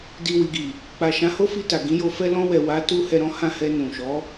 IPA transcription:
d i˨ w i˨ ɡ i˨ | k͡p a˨ ʃ ã˨˦ h o˦ f i˧ t a˨ ɡ ĩ˨˦ j o˧ f ɛ˧ l ɔ̃˧ w ɛ˨ w a˨˦ t u˧ h ɛ˧ ɾ ɔ̃˦ h ã˦˨ h ɛ˧ n ũ˨ ʃ ɔ˨˦

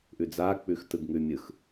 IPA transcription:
ʔ ʉ d͡z a k͡p ʉ x t ɯ ɡ ŋ ʉ mʲ ɯ x

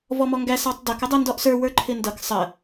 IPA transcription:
v ɔ m ɔ ŋ ɡ æ s ɑ tˤ d ʌ k ɪ dˤ i n d ɔ ʔ s ə˞ w ə˞ ǃʰ ɪ n d ʌ k sˤ ə

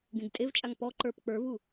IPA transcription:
ɡ ẽ ɡ tʼ e v t͡ʃʼ a ŋ p ɔ ǃ ə˞ p k͡p ə˞ v u

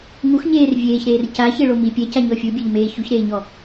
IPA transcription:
ŋ u x ɲ eː r vʲ eː ç ɾ eː r c a ç e ɭ o m i pʲ ɛ c a ɲ ɔ fʲ u bʲ ɛ ʎ m eː ç u ç ɾ eː ɲ ɔ

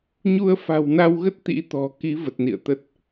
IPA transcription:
ɲ u˧ ə̯ f a̤˨˩ w n a˧ w ɣ ə˦˥ t̚ t̪ ḭ˧˥ t̪ ɔ̤˨˩ k i˨˦ v ə˨˩ t̚ n ḭ˧˨ ə̯ t̪ ə˦˥ t̚

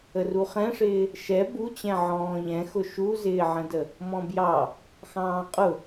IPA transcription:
ə r u χ ɛ̃ ʂ ɪː | ʃ ɛ b u t͡ɕ ɛ̃ ʕ ɔ̃ː ʎ ɛ̃ x ʊ ʃ u z ɪː ʕ ə̃ d ə | m ɔ̃ b j ɑ | x ɑ̃ː qʼ ʊ

